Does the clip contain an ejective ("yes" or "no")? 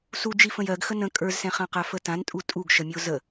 yes